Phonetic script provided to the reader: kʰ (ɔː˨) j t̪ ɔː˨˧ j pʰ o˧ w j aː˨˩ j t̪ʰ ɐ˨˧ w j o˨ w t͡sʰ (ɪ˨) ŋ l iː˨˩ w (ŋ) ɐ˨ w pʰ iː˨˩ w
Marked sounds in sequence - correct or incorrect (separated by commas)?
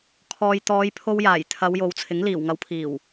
correct, incorrect, correct